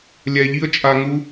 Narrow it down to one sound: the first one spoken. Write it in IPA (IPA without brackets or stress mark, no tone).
lʲ